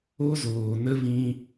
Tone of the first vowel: high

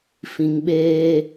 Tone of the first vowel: low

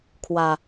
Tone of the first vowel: low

